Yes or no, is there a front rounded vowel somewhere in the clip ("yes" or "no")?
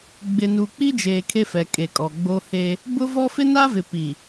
no